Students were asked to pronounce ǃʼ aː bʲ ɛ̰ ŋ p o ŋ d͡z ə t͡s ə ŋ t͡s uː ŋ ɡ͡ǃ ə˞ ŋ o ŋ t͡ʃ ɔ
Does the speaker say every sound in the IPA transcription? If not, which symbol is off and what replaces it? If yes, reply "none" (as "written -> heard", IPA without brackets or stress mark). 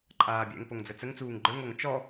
none